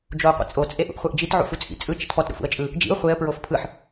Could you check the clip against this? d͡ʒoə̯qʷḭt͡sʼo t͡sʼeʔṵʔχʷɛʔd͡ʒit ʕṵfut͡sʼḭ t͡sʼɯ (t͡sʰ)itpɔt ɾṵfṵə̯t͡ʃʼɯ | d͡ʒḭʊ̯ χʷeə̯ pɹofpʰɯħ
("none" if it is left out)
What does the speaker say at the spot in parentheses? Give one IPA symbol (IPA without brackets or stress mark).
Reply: t͡ʃ